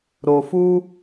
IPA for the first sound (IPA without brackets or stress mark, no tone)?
ɾ